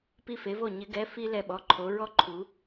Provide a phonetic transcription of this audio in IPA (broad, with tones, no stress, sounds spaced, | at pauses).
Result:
p i˧ f e˩˧ v o˧˩ ɲ ɪ˩˧ ɡ ɛ˩˧˩ f i˧ l ɛ˧ ɓ ɔ˩˧˩ ǃʰ o˩˧ ɹ ɔ˦˥ ǃʰ u˩˧